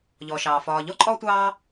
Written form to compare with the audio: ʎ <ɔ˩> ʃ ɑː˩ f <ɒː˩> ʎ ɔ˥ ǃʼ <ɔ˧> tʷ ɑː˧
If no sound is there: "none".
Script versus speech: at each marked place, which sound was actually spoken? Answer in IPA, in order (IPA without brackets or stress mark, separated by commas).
ɔ˩, ɒː˩, ɔ˧